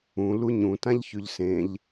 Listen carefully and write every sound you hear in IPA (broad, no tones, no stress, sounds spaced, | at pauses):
ũ l u ɲ ũ t ã ʎ ç ʉ ʎ s ẽ ʎ